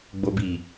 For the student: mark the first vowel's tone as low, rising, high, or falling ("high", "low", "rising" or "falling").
low